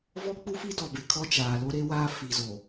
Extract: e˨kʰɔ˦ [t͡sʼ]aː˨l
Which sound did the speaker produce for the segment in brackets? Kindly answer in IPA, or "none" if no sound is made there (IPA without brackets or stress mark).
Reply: t͡ʃ